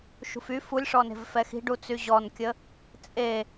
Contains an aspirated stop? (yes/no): no